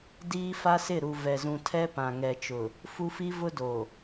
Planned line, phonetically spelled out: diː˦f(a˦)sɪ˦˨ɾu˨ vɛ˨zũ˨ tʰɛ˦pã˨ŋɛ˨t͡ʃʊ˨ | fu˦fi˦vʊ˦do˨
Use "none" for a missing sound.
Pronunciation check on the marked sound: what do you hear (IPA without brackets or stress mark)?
a˦